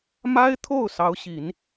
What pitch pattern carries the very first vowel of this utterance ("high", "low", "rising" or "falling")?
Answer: high